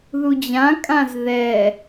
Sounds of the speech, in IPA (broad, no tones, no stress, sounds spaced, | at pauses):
ð u d͡ʑ ã kʼ ã z ð ɛ